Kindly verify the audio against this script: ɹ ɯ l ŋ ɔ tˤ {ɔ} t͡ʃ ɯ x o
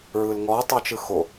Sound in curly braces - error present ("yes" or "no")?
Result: yes